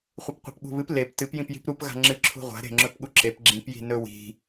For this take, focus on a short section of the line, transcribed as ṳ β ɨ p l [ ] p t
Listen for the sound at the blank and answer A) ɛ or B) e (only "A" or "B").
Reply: B